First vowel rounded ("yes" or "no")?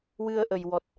no